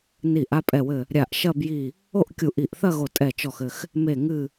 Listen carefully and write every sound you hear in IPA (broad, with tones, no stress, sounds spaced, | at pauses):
n i˧˩ ʔ a˥˧ pʼ ɛ˧˩ w ɘ˧˩ | ɾʲ a˧˩ ʔ ʃ ɐ˥˧ b j i˧˩ | o˥˧ ʔ kʲ u˧˩ ʔ i˧˩ ʔ θ ɐ˥˧ ɣ o˧˩ tʼ ɛ˧˩ t͡ʃ ɔ˧˩ x ɘ˧˩ x | m e˧˩ ŋ ɨ˧˩